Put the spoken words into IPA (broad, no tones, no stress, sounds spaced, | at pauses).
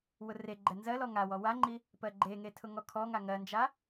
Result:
w ʊ r e ɡ͡ǃ ɛ n z ɜ l ɔ ŋ a w ɔ w a ŋ͡ǃ i | p ɜ ɡ͡ǃ e ŋ e tʰ ʊ ŋ ɔ kʰ ɔ ŋ a ŋ ɜ n d͡ʒ a